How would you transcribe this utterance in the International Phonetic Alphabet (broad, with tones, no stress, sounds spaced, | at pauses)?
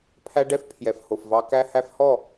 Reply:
pʰ æ˦ ɖ ɛ˦ f pʰ j ɛ˨ f h o˨ f v ɑ˦ k æ˦ h æ˦ f h ɔ˦˨